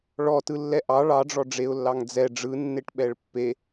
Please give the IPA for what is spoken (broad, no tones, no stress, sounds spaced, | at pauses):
ɭ ɔ t ɯ lː ɛ ʔ ɑ ɭ ɑ ɖ͡ʐ ɔ ɖ͡ʐ e ʊ̯ lː ɑ ŋ d͡z ɛ ɖ͡ʐ ɯ nː e ʈ ɓ ɛ ɭ pː e